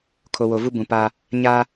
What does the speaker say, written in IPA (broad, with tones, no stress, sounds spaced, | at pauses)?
kʰ o˨ w o˨ v u˦ b ũ˨ p aː˦ | ɲ aː˦